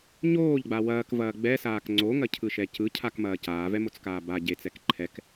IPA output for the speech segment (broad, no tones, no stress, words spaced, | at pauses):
ɲoːʎɡ͡ba wɐːkvɐː ɡ͡bɛsaːk ŋ͡ǀoŋɐcʰɯʃɛ cɯcʰakmɐː caːvɛmot͡skaː ba ɟet͡sɛk ǃʰɛk